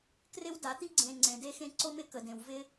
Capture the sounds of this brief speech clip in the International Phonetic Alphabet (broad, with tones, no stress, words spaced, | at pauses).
krɪ˦wda˨˦t̪i˦ ɡ͡ǀẽ˨ ŋ͡ǀẽ˨de˧xẽ˧ ǀo˧mɪ˧kə˨dẽ˨w vɪ˧